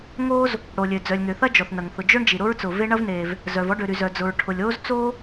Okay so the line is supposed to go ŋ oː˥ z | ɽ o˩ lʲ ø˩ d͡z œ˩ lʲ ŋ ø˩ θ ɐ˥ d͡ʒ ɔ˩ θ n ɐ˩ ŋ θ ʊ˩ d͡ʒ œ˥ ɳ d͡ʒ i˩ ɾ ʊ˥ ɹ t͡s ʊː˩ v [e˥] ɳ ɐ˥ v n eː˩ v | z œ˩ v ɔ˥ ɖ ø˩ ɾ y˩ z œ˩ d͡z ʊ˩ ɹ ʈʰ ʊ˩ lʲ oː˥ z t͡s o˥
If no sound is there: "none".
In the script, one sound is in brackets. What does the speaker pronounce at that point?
e˥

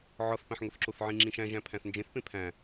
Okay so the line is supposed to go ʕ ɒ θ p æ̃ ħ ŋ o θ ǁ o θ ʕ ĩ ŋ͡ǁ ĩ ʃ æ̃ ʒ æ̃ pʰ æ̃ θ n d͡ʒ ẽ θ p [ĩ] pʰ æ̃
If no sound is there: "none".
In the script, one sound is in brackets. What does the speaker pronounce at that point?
ẽ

